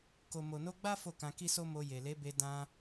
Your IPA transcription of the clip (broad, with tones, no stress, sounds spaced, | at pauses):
k o˨ m o˨ n o˧ ɡ͡b a˦ f o˦˨ k ã˧ k i˦ s o˦ m o˧ j e˨ l e˨˦ b e˧ d ã˧